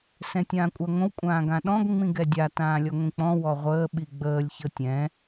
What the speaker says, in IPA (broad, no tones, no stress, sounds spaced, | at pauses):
s ɛ̃ tʲ ãː kʷʼ a ŋʷ ə̃ w kʷʼ ãː ɡ ã ɗ ɔ̃ ɡ ŋ͡m ĩ ɡ ɛ dʲ a t ãː lʲ ɔ ŋʷ ĩ k͡p ɔ̃ w ɔ ʁʷ əː ɓ i ɡ͡b əː lʲ ç ɤ tʲ ɛ̃